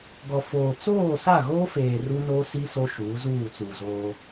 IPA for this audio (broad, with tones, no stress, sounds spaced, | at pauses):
ɡ ɔ˨ f oː˨ t͡s oː˦˨ s a˦˨ ɣ oː˦ f eː˨ r u˦ n o˦ s i˦ s o˦ ʃ uː˨˦ z uː˦˨ t͡s uː˨ z oː˦